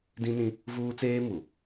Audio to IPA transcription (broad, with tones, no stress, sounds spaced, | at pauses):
d ĩ˦ n ĩ˦ | v uː˦ t͡s eː˦ m u˨